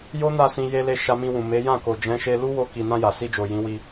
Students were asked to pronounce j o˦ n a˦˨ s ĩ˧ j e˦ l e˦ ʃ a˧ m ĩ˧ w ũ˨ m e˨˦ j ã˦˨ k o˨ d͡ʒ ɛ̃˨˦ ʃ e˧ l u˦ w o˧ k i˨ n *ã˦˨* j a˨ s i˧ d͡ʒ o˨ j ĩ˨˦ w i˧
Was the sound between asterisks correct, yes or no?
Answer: no